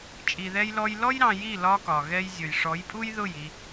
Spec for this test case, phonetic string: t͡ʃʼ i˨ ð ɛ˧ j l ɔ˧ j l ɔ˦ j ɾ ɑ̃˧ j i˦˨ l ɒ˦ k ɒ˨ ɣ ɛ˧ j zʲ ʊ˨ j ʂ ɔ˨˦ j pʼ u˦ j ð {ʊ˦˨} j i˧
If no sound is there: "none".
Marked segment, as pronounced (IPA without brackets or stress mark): ʊ˦˨